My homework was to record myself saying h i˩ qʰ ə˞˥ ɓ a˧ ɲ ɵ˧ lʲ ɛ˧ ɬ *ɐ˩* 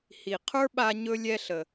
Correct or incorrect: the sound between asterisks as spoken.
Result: incorrect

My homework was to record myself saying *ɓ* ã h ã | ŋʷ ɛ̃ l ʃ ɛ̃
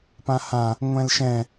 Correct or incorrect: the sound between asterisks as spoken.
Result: incorrect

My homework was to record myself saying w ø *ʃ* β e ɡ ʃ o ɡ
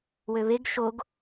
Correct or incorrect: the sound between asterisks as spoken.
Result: incorrect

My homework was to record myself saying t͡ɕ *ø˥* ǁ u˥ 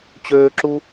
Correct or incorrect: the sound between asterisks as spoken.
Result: incorrect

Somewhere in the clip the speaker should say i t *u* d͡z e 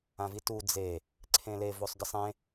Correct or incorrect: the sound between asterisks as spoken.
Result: correct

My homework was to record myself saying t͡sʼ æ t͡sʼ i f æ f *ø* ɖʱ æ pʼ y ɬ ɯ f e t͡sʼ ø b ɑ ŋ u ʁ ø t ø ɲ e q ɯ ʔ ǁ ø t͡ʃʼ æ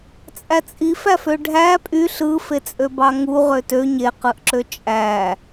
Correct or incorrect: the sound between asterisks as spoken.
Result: correct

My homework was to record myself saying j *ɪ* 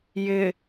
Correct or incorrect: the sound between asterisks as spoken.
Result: correct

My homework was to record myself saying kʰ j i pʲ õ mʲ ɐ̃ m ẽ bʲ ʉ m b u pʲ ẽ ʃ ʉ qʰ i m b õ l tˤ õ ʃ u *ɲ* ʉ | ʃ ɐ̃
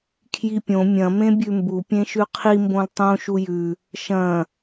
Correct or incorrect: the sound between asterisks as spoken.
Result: incorrect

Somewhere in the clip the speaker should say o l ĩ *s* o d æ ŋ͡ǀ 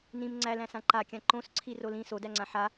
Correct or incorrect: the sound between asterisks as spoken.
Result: correct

